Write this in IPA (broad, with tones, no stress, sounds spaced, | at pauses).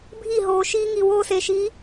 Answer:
bʱ i˦˨ ɦ oː˨ ʃ iː˦ ŋ i˨ w oː˦ s e˨ ʃ i˨˦